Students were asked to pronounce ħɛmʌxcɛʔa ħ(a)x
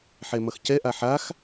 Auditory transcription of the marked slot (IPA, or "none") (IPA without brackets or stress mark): a